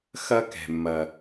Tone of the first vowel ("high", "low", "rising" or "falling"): high